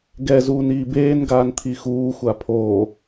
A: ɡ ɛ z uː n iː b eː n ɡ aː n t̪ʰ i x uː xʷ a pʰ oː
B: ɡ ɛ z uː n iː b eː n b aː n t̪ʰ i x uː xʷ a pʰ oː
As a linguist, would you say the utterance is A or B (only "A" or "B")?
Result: A